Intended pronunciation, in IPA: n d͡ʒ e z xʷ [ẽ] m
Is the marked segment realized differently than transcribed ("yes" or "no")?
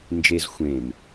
no